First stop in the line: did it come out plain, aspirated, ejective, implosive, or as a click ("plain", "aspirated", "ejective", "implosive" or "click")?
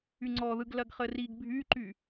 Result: click